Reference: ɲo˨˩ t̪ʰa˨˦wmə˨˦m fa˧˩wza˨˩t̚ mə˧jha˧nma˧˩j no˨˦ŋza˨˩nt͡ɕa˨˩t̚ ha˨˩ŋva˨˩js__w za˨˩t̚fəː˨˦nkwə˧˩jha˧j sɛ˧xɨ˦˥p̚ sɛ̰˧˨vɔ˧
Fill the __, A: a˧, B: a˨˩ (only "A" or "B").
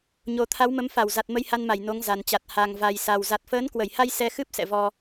B